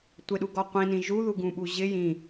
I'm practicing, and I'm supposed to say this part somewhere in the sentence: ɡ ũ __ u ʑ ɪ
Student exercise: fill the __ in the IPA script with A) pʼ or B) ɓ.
B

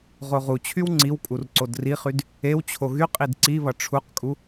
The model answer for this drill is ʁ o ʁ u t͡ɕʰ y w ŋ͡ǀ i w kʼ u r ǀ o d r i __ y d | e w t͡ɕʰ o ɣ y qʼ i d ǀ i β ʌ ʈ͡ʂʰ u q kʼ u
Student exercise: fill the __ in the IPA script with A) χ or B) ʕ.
A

